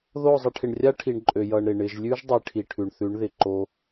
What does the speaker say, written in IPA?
ð o˦˨ zˤ ə˧ ʈʰ ɪ˨ ɳ rʲ a˦ ʈʰ i˨ ɳ ǃʼ ø˨ j ʌ˨ ɳ ɾ ɪ˨ ɳ ɪ˨ ʒ lʲ ʉ˦ ʒ dˤ i˧ ʈʰ i˨ ʈʰ ʉ˨ ɳ θ ʉ˨˦ ɳ ð ɪ˨ ǃ o˧

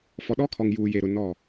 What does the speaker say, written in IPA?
f ɔ˨ ɗ ɔ˦ kʰ ɔ˨ ŋ j uː˨ j e˨ ɾ ʊ˨ n ɔ˦˨

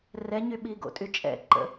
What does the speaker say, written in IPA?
r ɛ ɲ y ɓ i ɡ o̰ tʼ y t͡ʃʼ ɛ̰ ǃ ə̰

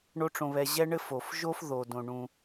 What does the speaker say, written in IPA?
ɳ o˥ ʈ͡ʂ õ˧ β ɛ˧ ʑ ɛ˥ ɳ ɘ˥ f o˩ f ʒ o˥ f ð o˩ d õ˩ ɳ ũ˩

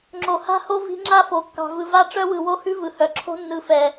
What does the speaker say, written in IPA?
ŋ͡ǁ o˨ h a̤˦ h o˦ v i̤˦ ŋ͡ǁ a˦ f o˨ kː ɑ̤˨ v ɯ˨ v a˦ ʈ͡ʂ œ˦ w ɯ˨ w o˦ h ʉ˦ v ɯ˨ h œ˨ ǁʰ o̤˦ nː ɯ˨ f ɛ˨

